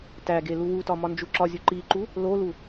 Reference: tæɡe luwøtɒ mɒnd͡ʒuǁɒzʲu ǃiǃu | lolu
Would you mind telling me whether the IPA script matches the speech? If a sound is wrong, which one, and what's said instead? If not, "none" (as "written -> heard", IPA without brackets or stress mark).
ø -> u